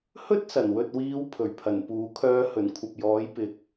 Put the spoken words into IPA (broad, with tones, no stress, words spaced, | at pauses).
hɵ˥t̚sɐ˨˩nwɵ˨t̚wiː˨˧w pʰɵ˨˩ɥpʰɐ˨˩npuː˨˥kʰœː˥ hɵ˨˩nkʷʰɐ˨p̚jɔː˨˥jpɪ˨˥k̚